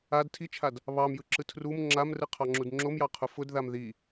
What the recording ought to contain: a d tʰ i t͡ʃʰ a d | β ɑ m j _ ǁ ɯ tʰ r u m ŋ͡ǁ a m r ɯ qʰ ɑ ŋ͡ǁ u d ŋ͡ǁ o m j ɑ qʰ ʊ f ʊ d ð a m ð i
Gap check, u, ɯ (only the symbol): ɯ